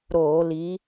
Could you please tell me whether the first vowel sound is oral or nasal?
oral